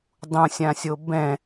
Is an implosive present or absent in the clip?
absent